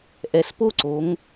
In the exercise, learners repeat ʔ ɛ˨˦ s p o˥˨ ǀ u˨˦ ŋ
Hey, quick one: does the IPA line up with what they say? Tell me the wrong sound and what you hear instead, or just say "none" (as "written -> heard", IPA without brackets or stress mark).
u˨˦ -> o˨˦